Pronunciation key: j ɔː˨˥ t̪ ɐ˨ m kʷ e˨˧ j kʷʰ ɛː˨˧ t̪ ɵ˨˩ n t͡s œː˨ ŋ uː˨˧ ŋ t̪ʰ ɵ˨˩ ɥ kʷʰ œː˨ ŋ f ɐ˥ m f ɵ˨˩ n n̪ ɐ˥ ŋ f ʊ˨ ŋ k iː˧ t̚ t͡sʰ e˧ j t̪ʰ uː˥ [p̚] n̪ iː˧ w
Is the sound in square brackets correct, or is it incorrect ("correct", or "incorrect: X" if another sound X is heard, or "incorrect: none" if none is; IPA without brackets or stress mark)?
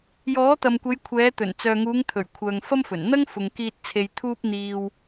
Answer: correct